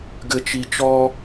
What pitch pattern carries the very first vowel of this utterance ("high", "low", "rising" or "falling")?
low